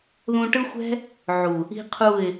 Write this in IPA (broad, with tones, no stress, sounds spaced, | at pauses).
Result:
ð ũ˧ ʈ ɯ˦ xʷ ɛ̤˦ | ʕ u˨ | i̤˦ qʰ u˦˨ ɪ̯